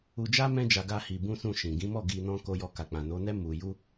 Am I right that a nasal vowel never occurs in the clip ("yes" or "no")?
no